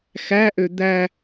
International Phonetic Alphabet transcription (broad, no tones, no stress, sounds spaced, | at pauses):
x æ ʔ ø d̪ æ